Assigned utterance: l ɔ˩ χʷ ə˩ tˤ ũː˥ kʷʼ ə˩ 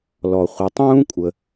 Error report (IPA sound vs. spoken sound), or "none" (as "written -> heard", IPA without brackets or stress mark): none